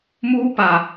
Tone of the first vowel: high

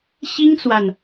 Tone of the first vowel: high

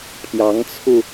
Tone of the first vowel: rising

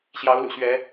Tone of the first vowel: rising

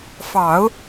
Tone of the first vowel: low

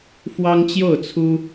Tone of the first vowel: high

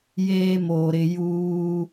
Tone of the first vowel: high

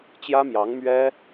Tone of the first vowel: high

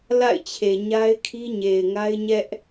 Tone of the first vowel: falling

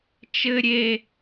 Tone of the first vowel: low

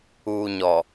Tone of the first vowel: low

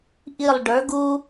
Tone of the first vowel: falling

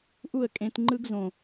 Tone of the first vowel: falling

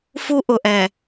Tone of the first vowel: high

